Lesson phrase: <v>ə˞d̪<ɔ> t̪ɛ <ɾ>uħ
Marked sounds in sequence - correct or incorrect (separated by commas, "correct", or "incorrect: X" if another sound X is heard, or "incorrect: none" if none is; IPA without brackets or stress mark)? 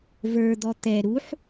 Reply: correct, correct, correct